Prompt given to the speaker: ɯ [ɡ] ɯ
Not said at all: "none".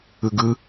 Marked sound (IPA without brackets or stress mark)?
ɡ